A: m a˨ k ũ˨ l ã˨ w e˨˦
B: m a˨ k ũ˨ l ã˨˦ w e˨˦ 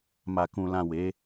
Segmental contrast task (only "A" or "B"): A